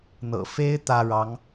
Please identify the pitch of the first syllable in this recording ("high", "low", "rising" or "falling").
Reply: low